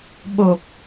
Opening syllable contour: low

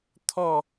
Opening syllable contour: falling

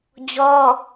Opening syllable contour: high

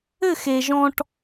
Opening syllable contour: falling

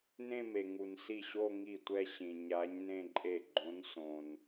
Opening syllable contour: falling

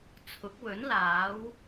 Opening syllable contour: rising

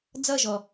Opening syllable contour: falling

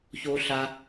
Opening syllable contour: high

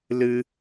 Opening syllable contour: high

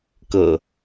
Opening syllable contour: low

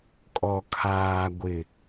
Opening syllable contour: low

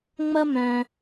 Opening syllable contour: high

